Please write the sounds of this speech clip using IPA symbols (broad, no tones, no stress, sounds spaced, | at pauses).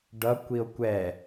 ɖ ʌ kʷ i o̯ kʷ ɛ